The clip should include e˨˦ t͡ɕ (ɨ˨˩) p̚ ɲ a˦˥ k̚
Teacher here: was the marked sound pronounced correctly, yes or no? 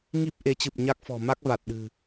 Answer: yes